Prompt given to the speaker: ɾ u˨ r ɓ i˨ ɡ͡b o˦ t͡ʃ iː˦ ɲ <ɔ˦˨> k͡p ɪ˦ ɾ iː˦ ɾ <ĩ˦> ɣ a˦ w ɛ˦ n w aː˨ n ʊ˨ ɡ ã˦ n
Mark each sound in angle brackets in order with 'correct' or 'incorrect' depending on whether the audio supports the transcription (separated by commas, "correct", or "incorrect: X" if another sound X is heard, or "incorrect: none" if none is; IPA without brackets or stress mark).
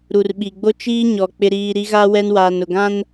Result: incorrect: ɔ˨, incorrect: i˦